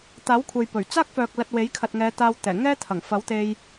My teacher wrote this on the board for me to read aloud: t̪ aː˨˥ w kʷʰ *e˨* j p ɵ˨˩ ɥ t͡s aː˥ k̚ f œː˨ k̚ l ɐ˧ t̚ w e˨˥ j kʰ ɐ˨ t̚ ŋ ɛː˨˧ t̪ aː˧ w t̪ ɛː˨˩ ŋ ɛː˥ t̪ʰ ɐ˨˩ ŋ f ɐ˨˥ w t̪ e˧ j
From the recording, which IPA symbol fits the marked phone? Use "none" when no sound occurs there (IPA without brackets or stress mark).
e˨